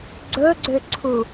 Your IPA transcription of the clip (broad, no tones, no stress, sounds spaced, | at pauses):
ɡ͡ǀ ɵ ɡ͡ǀ ʏ ǀʰ u